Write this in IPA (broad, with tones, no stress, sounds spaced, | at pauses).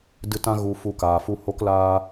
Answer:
d ɨ˧ t ã˦ ɣ u˧ f u˧ k aː˨ f u˦ h o˦ k l aː˦